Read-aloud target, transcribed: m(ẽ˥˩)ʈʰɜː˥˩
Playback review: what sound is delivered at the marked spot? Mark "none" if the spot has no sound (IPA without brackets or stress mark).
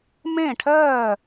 ẽ˥˩